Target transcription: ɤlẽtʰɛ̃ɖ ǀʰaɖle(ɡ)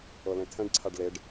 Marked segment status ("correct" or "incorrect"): incorrect